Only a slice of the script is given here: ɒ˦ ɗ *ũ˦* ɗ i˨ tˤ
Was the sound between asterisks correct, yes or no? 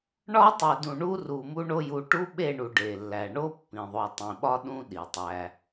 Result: yes